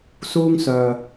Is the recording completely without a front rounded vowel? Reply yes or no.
no